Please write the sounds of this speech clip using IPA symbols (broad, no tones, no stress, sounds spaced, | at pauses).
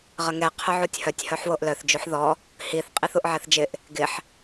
ʁ ə ŋ ɛ qʰ ʊ ʕ u tʲ h œ tʲ h œ ħ w o ʔ l œ θ d͡ʒ u ħ ð ɔ | h i θ qʼ i θ u ʔ ʕ ɛ θ d͡ʒ ɪ ʔ | ɡ ɪ ħ